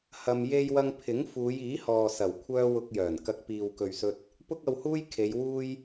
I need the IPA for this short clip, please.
h ɐ˧ m j e˧ j w ɐ˧ ŋ pʰ ɪ˨˥ ŋ f uː˨˧ j iː˨˥ h ɔː˨ s ɐ˨˩ w kʷʰ œː˥ w ʊ˧ k̚ j œː˨˩ n k ɐ˧ k̚ p iː˨ w k ɵ˨ ɥ s ɵ˧ t̚ | p ʊ˥ k̚ ɐ˧ w h uː˥ j kʰ e˨˧ j w uː˥ j

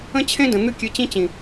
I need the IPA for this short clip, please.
ə̃˦ t͡ɕʰ ẽ˦ d ə̃˨ n̪ ɨ˦ kʲ ɨ˧ t͡ɕ ĩ˦ t͡ɕ ĩ˨

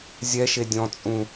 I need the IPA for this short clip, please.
zʲ ɛ ʃ e dʲ ɔ̃ t͡sʼ ũ

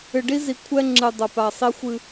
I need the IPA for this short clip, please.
ɨ˨ ɖ i˦ z i˨ kʷʰ ɛ˦ ŋ͡ǁ ɨ˨ dˤ ɐ˨ p a˨ sˤ i˦ xʷ ɨ˦

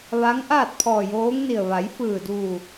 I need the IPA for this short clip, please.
ʋ a˧˥ ŋ ʔ aː˥˨ t̚ pʰ ɔː˧˩ j oː˧˥ ŋ n i˧˩ ə̯ ʋ a˩˧ j f ɯː˧˩ d uː˧˩

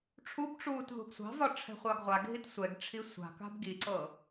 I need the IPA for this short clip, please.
ʈ͡ʂʰ u b ʈ͡ʂ uː t ð ṳ ɡ sʷ ɑ̤ v ɒ ʈ͡ʂʰ ɛ̤ χʷ ɑ ɡ ʁʷ a ɡʱ i t sʷ ɛ ɡ ʈ͡ʂʰ i sʷ a̤ k a̤ b ɡ i ǀ ɤ

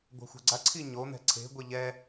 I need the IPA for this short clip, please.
ɡʷ a̤ xʷ a̤ ɡ͡ǀ a ǀʰ i ɲ o n̪ ɛ̤ ǀʰ e̤ ɡʷ e ʎ ɛ

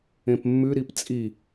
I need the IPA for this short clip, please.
ẽ p mː ʉ ɾ i p t͡sʼ i

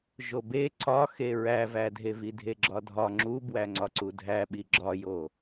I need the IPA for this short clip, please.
ʒ o b e ǀ ɒ x e ɹ æ v æ dʱ e v i dʱ e ɡ͡ǁ ɒ dʱ ɒ ŋ͡ǁ u b w æ ŋ͡ǀ ɒ ǀ u dʱ æ ɓ i ɡ͡ǁ ɒ j o

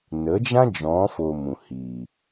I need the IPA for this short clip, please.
n ə˨˦ d͡ʒ ã˦ d͡ʒ ɔ̃˨˦ f o˨ m ũ˨ h iː˨

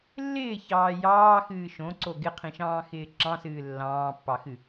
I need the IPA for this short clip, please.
lː ɪː ç ɑː j ɑː x ɨː ʃ õ ǀ o ɡ ɪ qʰ ĩ ʃ ɑ̃ː x ɪː ǁ ɑ̃ s ɨː lː ɑ̃ː pː ɑ x ɨ

